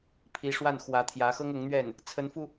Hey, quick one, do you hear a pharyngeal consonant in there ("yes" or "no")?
no